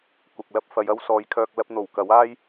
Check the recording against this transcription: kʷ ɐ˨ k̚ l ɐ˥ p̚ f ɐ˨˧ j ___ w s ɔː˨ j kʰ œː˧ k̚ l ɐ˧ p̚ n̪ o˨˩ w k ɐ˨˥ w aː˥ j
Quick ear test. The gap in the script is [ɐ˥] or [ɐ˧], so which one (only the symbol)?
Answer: ɐ˥